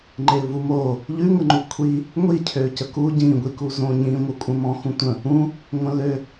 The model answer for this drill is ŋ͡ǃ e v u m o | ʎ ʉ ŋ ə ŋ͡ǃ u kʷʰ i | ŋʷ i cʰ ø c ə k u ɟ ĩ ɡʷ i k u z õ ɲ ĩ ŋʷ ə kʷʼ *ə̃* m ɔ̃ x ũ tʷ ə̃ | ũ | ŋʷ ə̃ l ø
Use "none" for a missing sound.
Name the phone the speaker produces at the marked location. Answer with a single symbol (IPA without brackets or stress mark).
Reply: ə̃